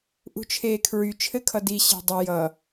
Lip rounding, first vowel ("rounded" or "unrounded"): rounded